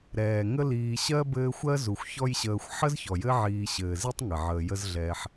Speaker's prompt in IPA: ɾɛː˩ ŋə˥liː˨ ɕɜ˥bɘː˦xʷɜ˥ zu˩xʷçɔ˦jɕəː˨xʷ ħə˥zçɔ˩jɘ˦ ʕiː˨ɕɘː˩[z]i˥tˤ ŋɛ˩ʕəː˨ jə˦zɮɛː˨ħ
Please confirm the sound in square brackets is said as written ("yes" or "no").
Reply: yes